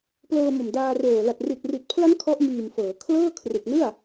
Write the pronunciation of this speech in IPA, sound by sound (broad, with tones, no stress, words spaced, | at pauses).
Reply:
plɤː˧mo˨˩mdaː˧roː˨˩ la˨˩t̚ri˨˩t̚ri˨˩t̚pʰla˦˥n kʰɔ˦˥ʔmiː˨˩mfɤː˩˦kʰlɤː˥˩ kʰrɯ˨˩k̚nɯ˥˩a̯